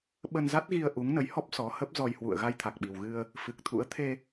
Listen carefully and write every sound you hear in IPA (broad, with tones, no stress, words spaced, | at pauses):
ɓə˧nza˦˥t̚ɣi˧ə̯ ʔu˨˦ŋnə˨˦jhɔ˦˥p̚ sɔ˨˦hə˦˥p̚zɔ˧j hwṵ˧˨ə̯ ɣa˧jt̪ʰa˨˩k̚ɓi˨˩wɣɨ˧ə̯ | fɨ˨˩k̚t̪ʰṵ˧˥ə̯ t̪ʰe˧